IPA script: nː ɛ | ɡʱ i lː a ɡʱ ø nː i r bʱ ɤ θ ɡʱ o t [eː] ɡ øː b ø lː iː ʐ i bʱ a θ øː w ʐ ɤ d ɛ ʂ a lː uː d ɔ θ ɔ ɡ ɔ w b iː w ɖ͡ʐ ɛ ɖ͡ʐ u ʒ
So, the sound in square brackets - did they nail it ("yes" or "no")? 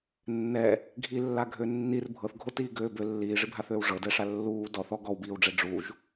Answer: no